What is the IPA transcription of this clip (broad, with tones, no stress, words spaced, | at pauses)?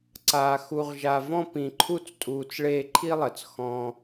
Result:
ǀaː˨xu˨ʁʒa˨vɔ̃˧ pĩ˨ǃʰu˧t͡stʼuː˨t͡s ɭeː˧ǃʰi˦lˠɜ˨t͡s xɔ̃˦